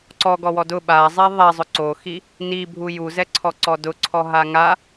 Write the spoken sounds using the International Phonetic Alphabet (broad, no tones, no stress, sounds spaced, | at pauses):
ǀ ɔ ɡ ɔ w ɔ d ʊ ɓ a zˤ e ðˤ ɛ zˤ ʊ ǀ o x i | n i bʱ u j u z ɛ ǀʰ ɔ ǀ ɔ d ʊ ǀʰ ɔ ɦ a ŋ a